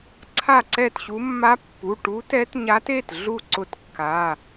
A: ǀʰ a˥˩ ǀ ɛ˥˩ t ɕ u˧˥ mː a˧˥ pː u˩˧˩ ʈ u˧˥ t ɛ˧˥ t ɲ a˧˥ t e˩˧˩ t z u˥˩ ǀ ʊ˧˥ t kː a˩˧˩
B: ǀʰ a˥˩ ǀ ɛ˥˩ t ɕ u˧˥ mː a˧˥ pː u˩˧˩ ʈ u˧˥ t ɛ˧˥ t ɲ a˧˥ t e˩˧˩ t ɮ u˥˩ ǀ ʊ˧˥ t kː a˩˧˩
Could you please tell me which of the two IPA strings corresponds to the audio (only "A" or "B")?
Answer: B